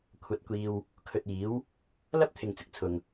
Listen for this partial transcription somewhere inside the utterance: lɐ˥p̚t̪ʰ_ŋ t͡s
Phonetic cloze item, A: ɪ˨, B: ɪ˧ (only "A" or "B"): A